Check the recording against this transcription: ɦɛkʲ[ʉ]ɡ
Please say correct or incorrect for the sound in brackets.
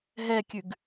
correct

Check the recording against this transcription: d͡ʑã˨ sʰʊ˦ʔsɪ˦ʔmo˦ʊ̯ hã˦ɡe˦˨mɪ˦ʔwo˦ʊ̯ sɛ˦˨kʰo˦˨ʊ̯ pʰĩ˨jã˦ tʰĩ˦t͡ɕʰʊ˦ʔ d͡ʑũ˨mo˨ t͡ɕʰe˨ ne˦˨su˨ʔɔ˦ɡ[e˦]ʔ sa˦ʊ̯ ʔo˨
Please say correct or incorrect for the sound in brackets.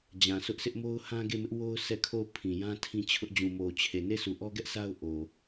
incorrect: ɛ˦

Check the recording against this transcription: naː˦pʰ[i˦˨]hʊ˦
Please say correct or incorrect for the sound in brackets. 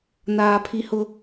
incorrect: i˦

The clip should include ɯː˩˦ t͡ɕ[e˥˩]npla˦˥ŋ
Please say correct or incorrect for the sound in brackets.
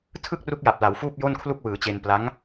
incorrect: e˧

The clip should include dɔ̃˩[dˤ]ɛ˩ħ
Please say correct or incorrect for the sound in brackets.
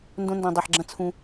correct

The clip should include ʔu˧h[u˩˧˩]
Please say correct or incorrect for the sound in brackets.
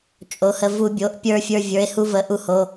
incorrect: o˩˧˩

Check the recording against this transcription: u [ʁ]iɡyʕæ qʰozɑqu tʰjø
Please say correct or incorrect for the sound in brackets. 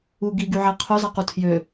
incorrect: ɡ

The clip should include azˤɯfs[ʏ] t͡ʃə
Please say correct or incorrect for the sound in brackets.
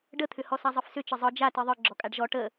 correct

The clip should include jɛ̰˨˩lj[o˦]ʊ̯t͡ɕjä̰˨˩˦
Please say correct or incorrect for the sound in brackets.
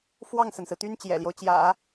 correct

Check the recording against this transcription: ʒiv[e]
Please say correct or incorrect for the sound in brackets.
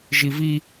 incorrect: i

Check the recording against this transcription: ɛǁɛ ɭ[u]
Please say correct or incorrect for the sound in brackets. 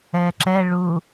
correct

